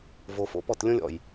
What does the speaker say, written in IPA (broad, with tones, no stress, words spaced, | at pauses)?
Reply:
vo˨fo̰˨pɔ˦˨t lʲõ˦lʲɔ̰˨j